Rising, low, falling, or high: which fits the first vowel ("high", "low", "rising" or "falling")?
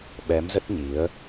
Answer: rising